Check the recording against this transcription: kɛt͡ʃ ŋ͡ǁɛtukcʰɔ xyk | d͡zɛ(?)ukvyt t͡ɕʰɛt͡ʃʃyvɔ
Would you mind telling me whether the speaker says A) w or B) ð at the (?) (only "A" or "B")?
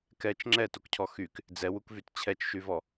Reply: A